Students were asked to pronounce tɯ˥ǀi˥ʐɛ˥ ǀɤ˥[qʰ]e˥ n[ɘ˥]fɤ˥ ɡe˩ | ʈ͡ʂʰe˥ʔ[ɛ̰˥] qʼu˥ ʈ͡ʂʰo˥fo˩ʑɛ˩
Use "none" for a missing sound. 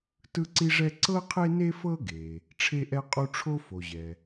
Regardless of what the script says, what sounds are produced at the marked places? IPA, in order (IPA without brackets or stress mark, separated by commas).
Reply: qʰ, e˥, ɛ˥